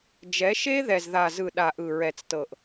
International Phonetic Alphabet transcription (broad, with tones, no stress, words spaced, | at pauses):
d͡ʒɛ˨˦ʃe˦ ðɛ˨zða˨zɯ˨ ɗa˨ʔɯ˨ ɹɛ˨t͡stɤ˨ʔ